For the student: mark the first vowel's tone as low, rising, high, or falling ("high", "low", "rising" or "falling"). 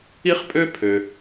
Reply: high